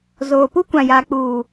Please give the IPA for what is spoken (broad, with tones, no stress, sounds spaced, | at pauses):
z oː˨ p u˦ kʷ ã˨ j aː˨ k͡p uː˨